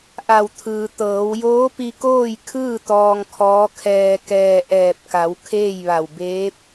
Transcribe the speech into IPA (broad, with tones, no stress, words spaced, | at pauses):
ʔa˧˩wt̪ʰɯː˩ t̪ɤː˩˧w joː˧˥pi˧koː˥˨jkʰɯː˥˨ t̪ɔː˧ŋkʰɔː˧˥kʰɛː˧kɛː˧ ʔɛː˧˩p̚ka˩˧w kʰeː˥˨jʋa˧˩w beː˧˥p̚